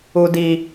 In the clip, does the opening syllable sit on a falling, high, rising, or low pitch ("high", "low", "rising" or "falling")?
high